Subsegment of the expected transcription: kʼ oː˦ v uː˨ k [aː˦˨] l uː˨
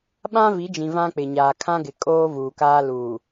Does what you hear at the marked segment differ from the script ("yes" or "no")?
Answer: yes